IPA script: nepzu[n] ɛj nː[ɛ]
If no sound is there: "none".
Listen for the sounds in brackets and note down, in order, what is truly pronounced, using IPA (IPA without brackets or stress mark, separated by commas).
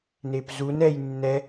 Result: n, ɛ